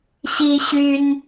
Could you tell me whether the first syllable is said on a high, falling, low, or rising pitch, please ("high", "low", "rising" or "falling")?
high